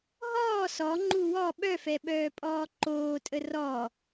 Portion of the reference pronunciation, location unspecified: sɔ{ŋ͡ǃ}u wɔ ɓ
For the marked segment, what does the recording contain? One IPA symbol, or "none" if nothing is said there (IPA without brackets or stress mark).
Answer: ŋ͡ǃ